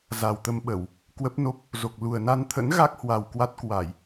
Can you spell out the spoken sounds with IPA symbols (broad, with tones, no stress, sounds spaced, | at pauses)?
z a˨˩ w t̪ ə˧ m ɓ ə˧˩˨ w | k w ə˦˥ p̚ n o˦˥ p̚ | z o˨˩ k̚ l u˨˩ ə̯ n a˧ n t̪ʰ ə̰˧˥ n ɣ a˦˥ k̚ h w a˨˩ w k w a˦˥ t̚ k w a˧˩˨ j